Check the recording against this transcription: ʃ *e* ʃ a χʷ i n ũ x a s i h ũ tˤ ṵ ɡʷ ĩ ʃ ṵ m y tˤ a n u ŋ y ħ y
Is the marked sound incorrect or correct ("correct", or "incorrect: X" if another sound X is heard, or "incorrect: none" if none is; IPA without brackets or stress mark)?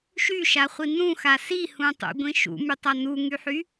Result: incorrect: y